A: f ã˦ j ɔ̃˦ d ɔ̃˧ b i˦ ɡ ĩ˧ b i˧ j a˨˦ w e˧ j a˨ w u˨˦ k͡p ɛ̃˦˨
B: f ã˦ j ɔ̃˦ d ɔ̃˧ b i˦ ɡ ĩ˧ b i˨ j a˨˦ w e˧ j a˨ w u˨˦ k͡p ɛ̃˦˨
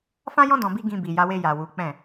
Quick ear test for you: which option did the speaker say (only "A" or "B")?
B